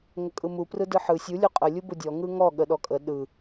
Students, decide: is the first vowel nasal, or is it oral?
oral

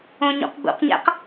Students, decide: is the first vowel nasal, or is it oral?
nasal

